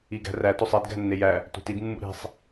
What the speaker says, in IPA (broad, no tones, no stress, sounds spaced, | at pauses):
i ɡ æ̤ r æ t o sˤ i d ɡ æ̤ nː e j æ | t ṳ t i d mː ṵ ɾ i̤ sˤ